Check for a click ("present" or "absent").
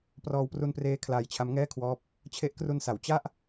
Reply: absent